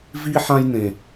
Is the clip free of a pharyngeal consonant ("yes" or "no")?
no